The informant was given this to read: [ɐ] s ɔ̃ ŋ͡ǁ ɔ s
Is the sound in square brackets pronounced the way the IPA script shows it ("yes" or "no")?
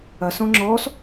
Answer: yes